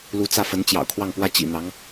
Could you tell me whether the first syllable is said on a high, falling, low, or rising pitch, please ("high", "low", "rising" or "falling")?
rising